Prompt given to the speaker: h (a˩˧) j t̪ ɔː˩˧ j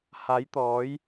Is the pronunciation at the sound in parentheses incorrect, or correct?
correct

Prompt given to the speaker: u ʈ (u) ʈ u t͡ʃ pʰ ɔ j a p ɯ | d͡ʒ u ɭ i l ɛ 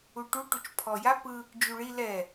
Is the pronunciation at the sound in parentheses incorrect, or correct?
correct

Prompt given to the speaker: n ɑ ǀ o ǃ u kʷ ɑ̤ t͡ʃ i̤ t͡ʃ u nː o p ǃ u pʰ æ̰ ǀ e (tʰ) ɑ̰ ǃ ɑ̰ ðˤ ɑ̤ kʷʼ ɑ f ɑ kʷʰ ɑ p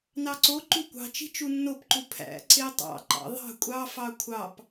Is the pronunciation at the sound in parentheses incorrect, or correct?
incorrect: tˤ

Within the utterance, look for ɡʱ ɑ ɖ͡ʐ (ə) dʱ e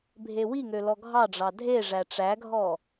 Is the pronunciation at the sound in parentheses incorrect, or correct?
incorrect: ɑ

